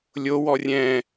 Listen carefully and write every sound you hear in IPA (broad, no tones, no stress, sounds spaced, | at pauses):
lʲ o w ɔ rʲ ɛ̃